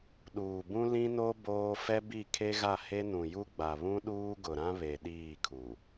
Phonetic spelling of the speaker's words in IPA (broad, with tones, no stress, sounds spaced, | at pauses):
ɗ uː˨ b ũ˦ l ĩ˦ n o˦ b oː˦ f ɛ˦ b i˦˨ kʰ e˦ ɣ a˦˨ h e˦ n ũ˨ j u˦ ɡ͡b a˨ β ũ˦ ɗ uː˦ ɡ ʊ˨ ɾ ã˦ β e˨ ɗ iː˦˨ kʰ u˨